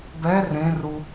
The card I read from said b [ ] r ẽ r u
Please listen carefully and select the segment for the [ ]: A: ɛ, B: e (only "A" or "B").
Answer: A